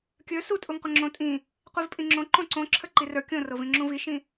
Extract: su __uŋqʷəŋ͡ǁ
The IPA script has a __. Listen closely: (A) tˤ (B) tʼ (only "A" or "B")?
B